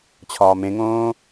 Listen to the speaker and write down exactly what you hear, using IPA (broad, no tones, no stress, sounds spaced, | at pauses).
t͡ɕʰ ɒː m ẽ ŋ õː